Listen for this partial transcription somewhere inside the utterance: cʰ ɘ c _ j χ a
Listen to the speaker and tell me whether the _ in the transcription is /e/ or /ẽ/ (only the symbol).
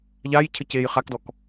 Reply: e